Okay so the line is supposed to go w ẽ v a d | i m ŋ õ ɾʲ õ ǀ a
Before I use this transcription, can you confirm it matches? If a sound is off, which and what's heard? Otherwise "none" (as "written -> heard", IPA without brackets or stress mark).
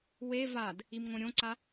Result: ẽ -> e